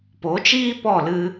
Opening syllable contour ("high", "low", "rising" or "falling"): rising